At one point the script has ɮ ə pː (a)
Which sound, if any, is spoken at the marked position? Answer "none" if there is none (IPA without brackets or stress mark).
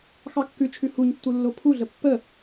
ə